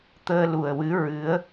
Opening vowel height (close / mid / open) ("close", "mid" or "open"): mid